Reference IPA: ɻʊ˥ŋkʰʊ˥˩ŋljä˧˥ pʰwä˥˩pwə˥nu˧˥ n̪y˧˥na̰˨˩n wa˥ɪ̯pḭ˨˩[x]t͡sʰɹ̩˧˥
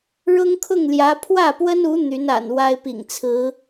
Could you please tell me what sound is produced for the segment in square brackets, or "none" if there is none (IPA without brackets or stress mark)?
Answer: ŋ